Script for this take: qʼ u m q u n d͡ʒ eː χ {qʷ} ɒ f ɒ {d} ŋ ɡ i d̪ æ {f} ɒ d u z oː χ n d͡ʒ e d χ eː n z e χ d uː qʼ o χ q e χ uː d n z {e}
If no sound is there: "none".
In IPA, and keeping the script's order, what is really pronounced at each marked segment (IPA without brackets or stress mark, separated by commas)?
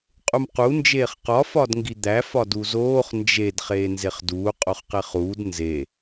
q, d, f, e